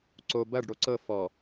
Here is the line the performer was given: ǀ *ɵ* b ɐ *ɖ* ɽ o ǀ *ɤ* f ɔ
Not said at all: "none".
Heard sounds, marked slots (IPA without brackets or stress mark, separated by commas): o, ɖ, ɤ